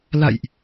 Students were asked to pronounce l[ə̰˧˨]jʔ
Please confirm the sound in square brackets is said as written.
no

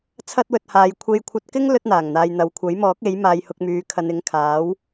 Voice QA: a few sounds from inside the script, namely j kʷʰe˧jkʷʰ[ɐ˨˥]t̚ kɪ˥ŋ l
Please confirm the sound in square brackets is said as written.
no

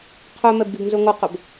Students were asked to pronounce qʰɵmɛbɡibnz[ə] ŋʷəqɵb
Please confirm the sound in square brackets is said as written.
no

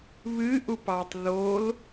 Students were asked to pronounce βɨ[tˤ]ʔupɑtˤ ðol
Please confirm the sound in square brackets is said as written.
no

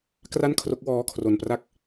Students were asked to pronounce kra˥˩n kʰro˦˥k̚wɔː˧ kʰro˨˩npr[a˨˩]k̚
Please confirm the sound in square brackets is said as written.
no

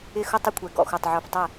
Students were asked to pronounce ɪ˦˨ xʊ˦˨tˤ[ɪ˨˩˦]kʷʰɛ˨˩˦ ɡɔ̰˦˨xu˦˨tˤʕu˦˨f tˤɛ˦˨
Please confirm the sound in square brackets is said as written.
no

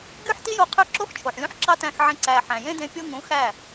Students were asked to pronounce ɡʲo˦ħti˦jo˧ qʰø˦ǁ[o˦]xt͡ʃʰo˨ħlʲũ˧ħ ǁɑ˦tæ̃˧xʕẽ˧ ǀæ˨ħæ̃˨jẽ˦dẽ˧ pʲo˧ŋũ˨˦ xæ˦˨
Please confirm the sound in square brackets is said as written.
yes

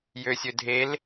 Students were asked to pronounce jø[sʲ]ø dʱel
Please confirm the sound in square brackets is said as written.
yes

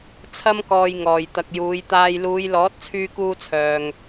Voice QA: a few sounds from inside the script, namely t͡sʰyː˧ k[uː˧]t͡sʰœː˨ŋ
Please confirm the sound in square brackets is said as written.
yes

